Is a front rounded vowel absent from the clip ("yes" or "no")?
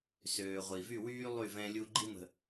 no